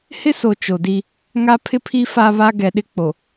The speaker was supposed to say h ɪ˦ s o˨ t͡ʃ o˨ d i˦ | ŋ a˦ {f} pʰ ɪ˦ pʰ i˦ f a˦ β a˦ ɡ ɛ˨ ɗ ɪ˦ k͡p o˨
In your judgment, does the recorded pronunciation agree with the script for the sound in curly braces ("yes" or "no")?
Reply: no